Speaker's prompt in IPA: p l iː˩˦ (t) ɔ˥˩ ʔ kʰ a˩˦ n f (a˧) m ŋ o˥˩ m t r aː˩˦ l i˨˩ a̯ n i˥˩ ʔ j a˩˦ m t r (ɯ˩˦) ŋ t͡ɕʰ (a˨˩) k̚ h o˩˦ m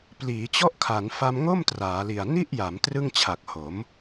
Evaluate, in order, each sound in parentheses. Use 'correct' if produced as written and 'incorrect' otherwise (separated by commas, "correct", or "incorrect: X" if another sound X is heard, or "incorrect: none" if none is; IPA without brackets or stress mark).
incorrect: t͡ɕ, correct, incorrect: ɯ˥˩, correct